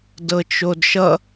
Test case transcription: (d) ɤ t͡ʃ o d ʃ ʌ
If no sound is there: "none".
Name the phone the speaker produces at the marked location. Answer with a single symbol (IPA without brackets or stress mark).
d